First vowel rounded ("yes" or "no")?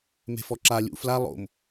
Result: no